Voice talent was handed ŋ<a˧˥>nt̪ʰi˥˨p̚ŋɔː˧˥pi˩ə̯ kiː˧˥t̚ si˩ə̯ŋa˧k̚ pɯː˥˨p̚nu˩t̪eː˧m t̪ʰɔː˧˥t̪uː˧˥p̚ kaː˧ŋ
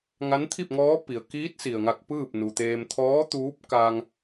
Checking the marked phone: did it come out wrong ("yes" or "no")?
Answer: no